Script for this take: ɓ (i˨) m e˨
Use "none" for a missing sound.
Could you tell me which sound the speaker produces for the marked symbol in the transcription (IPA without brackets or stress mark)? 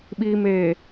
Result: i˨